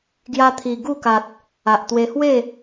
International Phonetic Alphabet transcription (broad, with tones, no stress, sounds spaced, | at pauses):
ɡ j a˧ t̪ʰ i˨˩ ɡ u˥˧ k a˨ t̚ | a˨ ʔ t̪ w e˧ h w e˥˧